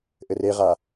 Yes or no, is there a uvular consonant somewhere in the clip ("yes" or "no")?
yes